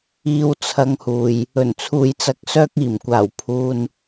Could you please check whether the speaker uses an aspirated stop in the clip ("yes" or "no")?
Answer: yes